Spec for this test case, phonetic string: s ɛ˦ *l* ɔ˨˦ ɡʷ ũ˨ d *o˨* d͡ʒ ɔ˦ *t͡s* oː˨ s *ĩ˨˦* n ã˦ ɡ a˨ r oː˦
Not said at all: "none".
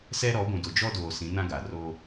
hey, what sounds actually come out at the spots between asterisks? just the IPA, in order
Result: ɾ, o˨, d, ĩ˨˦

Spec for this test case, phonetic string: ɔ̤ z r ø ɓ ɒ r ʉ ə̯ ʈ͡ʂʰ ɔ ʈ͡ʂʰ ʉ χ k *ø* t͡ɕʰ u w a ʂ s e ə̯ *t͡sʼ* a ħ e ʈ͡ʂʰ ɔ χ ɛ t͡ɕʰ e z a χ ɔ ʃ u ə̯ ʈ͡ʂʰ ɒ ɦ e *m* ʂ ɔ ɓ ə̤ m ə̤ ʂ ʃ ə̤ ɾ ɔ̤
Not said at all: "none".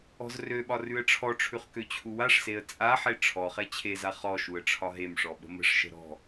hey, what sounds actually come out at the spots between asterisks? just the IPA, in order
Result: ø, t͡sʼ, m

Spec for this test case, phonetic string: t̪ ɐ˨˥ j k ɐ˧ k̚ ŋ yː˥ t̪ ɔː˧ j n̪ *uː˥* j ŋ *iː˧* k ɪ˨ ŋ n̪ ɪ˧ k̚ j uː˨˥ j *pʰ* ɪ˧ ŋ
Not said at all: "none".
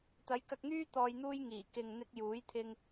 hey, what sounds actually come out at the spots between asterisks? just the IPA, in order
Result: uː˥, iː˨˩, t̪ʰ

